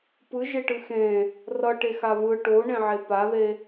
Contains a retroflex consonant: yes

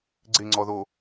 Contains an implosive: no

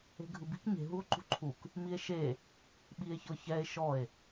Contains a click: yes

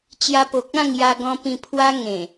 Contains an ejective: no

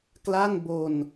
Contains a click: no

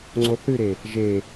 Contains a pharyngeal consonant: no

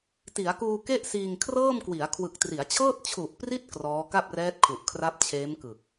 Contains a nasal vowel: no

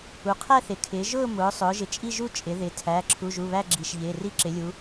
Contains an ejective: yes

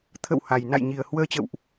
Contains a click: no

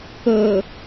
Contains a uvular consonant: no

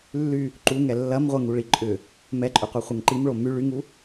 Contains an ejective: yes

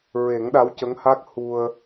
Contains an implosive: yes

